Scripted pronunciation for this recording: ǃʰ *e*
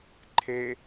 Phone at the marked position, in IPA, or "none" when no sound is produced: e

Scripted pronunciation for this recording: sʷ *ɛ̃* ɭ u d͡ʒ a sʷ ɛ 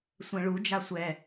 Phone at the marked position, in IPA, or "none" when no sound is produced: ɛ̃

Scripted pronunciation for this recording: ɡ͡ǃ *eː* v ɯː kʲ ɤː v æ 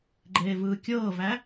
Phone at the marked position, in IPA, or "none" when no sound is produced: eː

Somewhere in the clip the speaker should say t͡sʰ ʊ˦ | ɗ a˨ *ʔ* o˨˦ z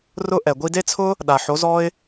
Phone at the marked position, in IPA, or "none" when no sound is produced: ħ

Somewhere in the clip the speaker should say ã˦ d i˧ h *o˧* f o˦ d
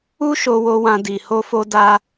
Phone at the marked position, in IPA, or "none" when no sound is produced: o˦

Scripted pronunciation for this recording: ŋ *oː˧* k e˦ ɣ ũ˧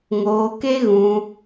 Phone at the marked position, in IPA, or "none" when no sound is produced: oː˧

